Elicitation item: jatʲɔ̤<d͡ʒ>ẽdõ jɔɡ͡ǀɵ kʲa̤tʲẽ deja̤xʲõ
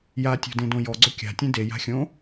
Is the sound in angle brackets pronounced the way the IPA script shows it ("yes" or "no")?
no